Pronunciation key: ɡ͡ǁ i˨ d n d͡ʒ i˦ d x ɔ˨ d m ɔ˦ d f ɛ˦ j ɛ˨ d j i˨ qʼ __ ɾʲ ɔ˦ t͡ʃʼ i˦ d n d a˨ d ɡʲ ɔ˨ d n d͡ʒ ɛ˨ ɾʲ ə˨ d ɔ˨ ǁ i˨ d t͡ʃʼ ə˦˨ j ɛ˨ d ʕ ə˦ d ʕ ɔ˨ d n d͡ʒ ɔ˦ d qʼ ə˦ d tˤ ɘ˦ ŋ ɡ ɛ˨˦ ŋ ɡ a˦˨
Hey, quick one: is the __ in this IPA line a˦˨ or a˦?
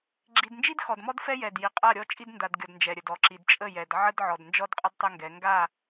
a˦˨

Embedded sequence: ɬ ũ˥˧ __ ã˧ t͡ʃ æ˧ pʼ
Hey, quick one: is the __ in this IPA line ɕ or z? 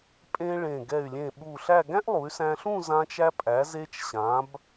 z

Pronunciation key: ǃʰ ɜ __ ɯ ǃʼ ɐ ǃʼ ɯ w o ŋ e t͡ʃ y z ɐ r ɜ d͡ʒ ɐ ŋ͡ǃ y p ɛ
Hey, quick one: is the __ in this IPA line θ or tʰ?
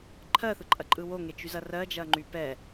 θ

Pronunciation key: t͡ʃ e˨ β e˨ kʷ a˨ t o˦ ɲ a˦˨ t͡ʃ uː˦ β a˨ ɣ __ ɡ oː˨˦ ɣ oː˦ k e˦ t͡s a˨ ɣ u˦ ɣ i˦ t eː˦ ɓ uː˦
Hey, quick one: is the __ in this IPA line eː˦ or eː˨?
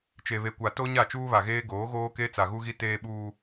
eː˦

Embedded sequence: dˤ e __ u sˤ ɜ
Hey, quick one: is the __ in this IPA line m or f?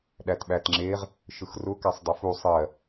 f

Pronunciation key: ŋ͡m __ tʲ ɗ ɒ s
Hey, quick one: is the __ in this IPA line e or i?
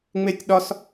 e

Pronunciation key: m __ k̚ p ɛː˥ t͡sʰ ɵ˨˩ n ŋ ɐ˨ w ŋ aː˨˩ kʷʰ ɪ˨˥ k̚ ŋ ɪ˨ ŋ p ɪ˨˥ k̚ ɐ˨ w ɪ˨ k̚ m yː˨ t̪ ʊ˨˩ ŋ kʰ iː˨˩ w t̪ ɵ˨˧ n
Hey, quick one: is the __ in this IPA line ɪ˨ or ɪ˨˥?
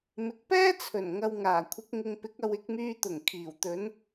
ɪ˨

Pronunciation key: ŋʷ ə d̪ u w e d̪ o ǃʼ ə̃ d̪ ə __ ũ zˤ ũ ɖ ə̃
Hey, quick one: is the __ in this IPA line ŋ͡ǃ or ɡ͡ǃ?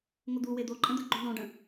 ɡ͡ǃ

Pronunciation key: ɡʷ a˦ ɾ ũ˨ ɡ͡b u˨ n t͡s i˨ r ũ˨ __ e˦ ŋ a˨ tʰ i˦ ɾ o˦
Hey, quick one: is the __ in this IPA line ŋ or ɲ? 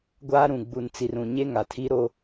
ɲ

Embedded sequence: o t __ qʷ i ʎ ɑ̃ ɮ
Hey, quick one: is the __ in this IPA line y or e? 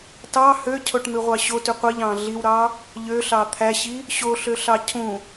y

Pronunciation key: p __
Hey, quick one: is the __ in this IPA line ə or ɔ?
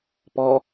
ɔ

